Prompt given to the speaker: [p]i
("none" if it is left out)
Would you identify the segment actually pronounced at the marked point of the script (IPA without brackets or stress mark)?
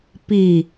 p